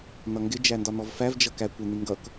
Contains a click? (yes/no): no